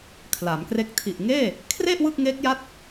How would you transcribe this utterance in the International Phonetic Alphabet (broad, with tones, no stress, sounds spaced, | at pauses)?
kʰ l a˩˦ m k r e˦˥ k̚ tʰ i˨˩ ʔ ŋ eː˥˩ | kʰ r e˥˩ ʔ w ɯ˥˩ k̚ ŋ eː˦˥ k̚ j a˦˥ t̚